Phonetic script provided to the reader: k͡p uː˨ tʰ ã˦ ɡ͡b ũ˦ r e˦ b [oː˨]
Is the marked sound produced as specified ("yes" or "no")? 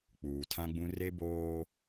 no